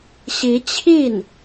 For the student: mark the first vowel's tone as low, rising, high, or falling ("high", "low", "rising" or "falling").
rising